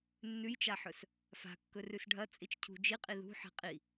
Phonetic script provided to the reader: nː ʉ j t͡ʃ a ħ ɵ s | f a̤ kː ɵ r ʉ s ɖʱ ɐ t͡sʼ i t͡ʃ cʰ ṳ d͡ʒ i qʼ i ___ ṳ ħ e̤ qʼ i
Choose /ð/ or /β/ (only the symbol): ð